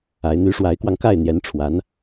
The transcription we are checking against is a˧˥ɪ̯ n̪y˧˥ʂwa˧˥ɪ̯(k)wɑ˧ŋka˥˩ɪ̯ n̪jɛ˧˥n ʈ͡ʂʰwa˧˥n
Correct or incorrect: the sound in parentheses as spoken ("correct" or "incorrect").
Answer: correct